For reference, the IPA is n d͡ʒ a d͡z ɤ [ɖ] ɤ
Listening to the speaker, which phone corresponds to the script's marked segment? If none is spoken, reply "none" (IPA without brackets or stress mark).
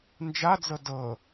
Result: d